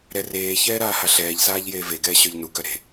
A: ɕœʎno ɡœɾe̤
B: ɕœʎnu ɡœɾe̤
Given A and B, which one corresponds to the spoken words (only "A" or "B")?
B